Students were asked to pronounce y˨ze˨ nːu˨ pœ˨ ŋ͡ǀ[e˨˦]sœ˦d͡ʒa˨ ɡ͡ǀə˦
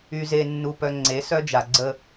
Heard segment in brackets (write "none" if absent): e˨˦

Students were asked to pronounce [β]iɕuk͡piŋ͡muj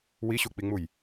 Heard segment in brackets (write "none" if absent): w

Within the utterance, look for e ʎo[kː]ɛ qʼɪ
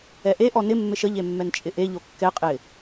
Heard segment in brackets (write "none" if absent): kː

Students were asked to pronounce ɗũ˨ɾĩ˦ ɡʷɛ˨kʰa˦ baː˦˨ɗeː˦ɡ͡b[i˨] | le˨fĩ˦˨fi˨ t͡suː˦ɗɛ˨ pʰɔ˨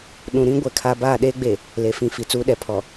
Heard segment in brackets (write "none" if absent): e˨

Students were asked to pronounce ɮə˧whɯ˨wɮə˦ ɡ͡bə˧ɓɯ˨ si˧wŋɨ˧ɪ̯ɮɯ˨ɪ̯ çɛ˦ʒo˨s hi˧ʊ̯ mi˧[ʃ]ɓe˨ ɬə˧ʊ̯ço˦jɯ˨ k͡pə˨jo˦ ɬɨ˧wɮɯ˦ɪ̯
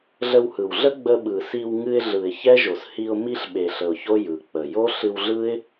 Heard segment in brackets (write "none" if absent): ɬ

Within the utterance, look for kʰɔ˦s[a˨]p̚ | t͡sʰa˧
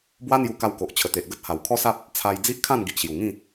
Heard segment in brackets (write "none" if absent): a˦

